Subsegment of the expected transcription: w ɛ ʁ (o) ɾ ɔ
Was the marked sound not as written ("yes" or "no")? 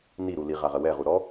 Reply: yes